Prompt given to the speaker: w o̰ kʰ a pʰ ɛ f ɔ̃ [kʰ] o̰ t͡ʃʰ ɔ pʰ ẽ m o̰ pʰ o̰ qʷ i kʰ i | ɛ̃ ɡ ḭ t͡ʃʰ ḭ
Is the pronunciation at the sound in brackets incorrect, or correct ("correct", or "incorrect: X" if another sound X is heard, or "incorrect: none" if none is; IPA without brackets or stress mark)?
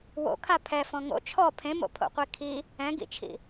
incorrect: ŋ